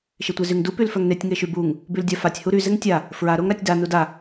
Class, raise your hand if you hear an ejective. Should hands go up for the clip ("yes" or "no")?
no